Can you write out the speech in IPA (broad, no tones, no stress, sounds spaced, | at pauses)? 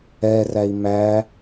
ɛ r æ i̯ m æ